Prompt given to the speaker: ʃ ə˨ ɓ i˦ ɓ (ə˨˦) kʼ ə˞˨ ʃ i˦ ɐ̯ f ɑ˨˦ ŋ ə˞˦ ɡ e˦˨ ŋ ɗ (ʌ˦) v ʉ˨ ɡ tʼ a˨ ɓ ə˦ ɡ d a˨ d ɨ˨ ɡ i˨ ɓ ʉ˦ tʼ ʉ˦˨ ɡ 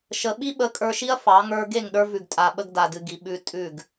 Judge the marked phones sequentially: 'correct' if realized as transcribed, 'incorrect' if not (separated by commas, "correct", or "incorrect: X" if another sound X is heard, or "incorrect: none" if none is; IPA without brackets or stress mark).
correct, incorrect: ə˞˦